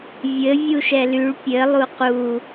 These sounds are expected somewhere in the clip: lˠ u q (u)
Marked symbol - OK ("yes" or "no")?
yes